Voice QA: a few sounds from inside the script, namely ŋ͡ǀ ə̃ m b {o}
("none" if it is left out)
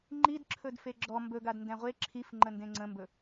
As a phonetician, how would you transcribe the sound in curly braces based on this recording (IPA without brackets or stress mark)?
ɵ